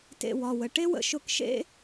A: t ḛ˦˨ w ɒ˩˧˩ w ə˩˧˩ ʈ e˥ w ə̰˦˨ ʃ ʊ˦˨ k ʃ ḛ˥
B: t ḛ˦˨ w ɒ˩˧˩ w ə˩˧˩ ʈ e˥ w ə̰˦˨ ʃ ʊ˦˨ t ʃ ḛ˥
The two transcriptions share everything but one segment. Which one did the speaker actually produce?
A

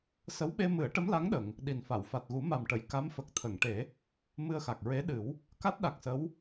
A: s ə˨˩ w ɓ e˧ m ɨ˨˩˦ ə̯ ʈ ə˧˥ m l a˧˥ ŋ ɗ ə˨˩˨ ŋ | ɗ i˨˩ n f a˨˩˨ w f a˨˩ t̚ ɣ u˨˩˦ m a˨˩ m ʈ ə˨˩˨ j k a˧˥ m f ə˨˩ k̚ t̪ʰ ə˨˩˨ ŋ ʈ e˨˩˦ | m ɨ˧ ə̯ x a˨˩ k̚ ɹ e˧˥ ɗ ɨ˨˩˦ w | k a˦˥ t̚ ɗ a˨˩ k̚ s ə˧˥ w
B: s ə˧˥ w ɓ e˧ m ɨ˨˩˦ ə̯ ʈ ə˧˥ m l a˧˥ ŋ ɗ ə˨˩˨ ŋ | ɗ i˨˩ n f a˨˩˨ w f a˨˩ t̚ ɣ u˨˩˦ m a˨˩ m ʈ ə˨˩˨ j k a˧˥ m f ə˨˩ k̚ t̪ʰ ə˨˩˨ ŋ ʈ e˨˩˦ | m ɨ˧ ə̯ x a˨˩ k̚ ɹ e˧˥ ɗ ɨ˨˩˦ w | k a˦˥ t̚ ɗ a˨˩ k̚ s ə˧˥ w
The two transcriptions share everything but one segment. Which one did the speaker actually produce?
B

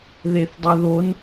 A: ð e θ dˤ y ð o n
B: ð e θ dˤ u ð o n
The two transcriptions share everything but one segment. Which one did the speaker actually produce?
A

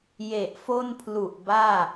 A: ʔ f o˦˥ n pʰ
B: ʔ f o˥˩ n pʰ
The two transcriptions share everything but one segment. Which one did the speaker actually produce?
B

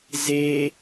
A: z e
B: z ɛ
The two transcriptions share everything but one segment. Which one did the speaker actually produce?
A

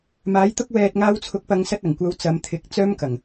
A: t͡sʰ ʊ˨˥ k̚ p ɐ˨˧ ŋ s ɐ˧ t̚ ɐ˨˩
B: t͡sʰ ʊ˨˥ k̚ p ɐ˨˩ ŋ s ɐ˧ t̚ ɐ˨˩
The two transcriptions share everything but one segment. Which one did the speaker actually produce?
A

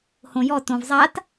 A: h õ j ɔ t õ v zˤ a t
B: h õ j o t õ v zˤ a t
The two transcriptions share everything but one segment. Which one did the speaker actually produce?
A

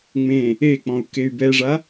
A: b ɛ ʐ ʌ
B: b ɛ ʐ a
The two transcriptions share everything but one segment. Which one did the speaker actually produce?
B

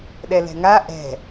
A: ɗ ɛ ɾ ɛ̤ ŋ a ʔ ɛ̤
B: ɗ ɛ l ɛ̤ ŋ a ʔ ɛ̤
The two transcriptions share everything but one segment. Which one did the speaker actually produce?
B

